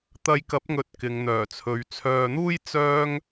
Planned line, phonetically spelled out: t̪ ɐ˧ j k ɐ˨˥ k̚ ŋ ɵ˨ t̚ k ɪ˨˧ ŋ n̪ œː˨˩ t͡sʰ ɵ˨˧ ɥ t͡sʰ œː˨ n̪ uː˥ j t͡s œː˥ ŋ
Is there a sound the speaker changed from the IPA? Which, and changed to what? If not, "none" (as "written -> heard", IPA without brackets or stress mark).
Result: k̚ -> p̚